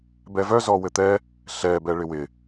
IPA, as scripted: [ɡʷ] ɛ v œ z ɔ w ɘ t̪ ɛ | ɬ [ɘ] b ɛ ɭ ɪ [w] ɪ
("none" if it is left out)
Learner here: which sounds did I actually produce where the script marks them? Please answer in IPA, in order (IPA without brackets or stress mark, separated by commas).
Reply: b, ɛ, w